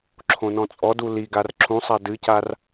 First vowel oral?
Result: no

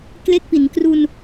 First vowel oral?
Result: yes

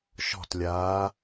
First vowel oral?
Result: yes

